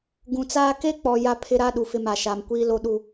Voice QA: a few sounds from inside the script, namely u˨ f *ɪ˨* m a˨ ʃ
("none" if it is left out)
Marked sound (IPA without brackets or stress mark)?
ɪ˦